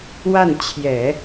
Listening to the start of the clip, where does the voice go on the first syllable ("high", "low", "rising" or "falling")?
falling